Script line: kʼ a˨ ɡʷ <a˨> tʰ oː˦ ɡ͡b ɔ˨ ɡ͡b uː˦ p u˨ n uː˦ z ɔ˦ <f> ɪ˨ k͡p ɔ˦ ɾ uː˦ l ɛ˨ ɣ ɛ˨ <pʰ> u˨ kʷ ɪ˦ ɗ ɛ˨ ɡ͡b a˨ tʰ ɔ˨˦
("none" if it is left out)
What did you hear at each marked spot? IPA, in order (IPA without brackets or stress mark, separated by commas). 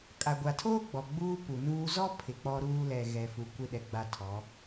a˨, pʰ, f